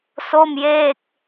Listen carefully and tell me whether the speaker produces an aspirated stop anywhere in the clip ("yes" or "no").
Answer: no